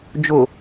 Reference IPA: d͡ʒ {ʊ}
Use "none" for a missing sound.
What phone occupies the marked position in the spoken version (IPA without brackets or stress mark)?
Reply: ʊ